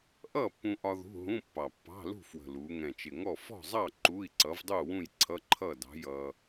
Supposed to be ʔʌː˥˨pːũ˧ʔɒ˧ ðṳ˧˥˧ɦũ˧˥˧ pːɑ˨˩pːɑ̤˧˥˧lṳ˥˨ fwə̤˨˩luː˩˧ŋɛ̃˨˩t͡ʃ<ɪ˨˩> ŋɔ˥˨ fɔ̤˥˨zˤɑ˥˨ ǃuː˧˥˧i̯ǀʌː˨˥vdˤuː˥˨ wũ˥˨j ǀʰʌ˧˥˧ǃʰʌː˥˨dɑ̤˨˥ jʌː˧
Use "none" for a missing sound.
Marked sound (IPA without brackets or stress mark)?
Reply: ɪ˨˩